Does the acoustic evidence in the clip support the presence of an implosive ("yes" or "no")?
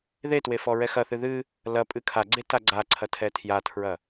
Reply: no